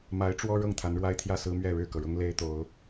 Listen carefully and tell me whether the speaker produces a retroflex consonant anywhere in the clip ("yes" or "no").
yes